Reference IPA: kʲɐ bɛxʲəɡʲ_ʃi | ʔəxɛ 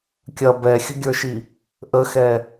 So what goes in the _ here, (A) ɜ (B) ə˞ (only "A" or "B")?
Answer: B